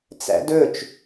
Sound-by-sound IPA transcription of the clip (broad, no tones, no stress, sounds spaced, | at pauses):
t͡s æ̰ d ɵ t͡ʃ